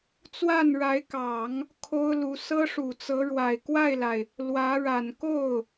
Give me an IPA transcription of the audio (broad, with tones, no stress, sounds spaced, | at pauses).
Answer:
t͡s w a˥˩ n ɻ a˧˥ ɪ̯ k ɑ˨˩˦ ŋ | kʰ o˥ ʊ̯ l u˧˥ s ɤ˥ ʂ u˨˩ t͡s ɤ˧˥ ɻ w a˨˩ ɪ̯ k w a˥˩ ɪ̯ l a˩ ɪ̯ | l w ä˧˥ ɻ a˨˩ n k o˥˩ ʊ̯